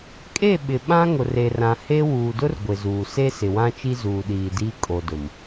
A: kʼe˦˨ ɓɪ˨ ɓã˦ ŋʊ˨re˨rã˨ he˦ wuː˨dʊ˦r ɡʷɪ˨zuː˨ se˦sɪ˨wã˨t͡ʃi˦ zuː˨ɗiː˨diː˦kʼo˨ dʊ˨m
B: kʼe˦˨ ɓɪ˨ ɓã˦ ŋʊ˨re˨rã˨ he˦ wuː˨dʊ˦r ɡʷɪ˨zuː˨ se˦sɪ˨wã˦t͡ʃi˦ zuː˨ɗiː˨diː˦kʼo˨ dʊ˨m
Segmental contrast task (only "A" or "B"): B